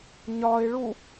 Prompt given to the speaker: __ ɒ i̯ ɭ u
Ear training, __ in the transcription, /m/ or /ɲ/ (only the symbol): ɲ